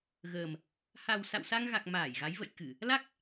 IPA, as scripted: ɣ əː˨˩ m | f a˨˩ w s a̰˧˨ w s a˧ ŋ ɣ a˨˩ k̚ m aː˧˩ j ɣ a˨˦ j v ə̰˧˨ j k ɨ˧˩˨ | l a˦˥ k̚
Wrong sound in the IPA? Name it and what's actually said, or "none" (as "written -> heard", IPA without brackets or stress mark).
f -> h